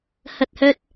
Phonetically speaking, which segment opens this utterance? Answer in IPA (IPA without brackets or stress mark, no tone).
h